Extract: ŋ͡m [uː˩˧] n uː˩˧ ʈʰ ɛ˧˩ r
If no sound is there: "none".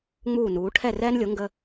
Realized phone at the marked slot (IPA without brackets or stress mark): uː˧˩